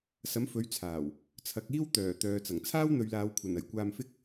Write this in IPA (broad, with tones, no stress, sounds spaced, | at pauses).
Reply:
s ɐ˨˥ m f ɵ˨˥ ɥ t͡sʰ aː˨˩ w | t͡sʰ ɐ˨˥ k̚ iː˥ w t̪ œː˨˩ t̪ œː˨ t͡s ɐ˨˩ ŋ t͡sʰ aː˥ w n̪ ɵ˨˧ ɥ l aː˨˧ w kʷʰ ɐ˨˩ n ɐ˨˩ j kʷ aː˧ m f ɪ˥ k̚